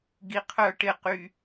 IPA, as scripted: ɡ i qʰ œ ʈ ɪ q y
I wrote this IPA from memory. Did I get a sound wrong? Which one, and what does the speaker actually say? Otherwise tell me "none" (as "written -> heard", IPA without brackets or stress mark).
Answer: none